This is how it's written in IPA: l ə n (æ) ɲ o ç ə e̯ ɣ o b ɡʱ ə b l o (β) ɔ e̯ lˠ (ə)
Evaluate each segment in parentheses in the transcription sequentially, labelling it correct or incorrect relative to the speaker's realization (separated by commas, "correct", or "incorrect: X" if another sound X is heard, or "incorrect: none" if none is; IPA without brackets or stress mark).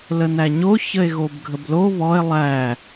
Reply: correct, correct, incorrect: æ